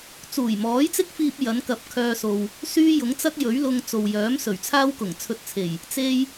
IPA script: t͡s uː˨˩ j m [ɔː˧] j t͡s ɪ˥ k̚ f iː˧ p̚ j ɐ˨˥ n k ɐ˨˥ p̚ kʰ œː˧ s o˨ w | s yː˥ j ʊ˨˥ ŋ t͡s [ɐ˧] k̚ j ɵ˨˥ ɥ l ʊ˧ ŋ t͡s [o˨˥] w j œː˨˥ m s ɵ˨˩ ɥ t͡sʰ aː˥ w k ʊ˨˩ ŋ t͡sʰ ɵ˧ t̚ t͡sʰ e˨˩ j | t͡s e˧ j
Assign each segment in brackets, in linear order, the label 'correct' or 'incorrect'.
incorrect, incorrect, incorrect

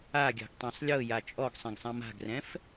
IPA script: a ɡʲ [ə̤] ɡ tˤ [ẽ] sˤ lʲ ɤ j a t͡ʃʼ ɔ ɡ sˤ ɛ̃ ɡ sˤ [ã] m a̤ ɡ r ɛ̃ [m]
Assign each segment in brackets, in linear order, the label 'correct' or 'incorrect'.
incorrect, incorrect, correct, incorrect

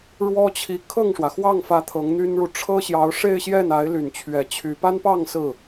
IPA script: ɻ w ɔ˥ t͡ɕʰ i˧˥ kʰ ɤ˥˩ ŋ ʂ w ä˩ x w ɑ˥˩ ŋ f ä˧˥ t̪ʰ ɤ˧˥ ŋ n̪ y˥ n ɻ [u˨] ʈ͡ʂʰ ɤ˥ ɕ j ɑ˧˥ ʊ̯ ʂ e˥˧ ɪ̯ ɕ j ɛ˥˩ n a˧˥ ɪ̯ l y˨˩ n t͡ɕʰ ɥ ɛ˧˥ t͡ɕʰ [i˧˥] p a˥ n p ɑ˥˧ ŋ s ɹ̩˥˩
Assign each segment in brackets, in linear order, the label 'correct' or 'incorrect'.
correct, incorrect

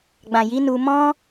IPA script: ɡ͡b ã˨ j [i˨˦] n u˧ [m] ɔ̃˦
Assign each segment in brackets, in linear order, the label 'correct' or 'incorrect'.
correct, correct

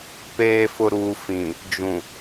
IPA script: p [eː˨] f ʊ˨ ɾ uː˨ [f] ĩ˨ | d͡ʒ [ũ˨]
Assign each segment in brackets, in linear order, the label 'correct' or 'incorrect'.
correct, correct, correct

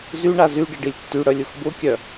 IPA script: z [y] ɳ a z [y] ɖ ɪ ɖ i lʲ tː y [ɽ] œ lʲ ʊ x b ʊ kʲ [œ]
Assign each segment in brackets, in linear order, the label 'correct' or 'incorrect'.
correct, correct, correct, correct

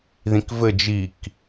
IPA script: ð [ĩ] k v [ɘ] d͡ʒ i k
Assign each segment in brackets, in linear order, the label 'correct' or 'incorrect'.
correct, correct

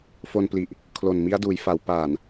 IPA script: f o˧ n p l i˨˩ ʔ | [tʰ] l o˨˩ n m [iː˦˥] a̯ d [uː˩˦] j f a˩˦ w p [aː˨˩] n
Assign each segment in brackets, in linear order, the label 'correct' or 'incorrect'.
incorrect, incorrect, correct, correct

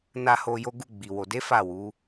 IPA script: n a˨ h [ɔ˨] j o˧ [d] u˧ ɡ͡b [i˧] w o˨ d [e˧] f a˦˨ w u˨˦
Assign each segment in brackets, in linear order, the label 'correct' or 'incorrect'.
incorrect, incorrect, incorrect, incorrect

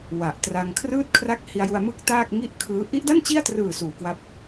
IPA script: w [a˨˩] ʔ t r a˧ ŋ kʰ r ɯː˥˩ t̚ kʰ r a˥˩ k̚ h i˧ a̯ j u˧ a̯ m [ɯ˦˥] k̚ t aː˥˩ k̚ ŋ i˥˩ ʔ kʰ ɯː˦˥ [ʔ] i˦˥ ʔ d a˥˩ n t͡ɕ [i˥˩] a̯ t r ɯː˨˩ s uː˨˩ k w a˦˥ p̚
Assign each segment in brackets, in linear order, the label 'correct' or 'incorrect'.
correct, correct, correct, correct

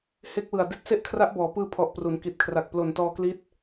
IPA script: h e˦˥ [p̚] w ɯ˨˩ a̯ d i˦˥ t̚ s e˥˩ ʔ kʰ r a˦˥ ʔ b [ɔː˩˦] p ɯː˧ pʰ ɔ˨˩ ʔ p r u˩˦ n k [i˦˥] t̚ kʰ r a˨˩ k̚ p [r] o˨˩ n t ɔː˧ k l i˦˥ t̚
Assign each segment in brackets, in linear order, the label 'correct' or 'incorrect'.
incorrect, correct, incorrect, incorrect

